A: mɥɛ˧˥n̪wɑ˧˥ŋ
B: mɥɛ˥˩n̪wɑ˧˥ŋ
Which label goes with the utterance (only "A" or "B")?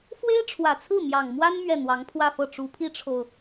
B